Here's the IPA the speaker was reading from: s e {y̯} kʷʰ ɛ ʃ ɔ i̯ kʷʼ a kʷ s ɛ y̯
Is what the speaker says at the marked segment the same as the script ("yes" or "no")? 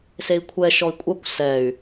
no